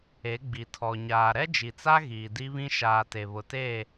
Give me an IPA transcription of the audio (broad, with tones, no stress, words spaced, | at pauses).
e˨˦ɡ͡bi˨tʰɔ˨ ɲaː˨ɾɛ˦d͡ʒi˨t͡sa˦ ɣiː˨di˦βĩ˦ ʃaː˨te˨βʊ˨te˦˨